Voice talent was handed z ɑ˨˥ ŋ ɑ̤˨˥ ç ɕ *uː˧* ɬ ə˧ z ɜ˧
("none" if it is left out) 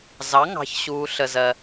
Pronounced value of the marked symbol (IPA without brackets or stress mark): uː˧